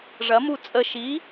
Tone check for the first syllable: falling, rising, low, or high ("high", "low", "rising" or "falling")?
rising